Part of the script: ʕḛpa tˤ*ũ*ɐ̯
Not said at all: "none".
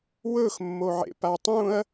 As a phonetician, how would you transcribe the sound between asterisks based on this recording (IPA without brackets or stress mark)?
ũ